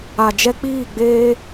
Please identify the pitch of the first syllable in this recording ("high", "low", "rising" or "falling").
low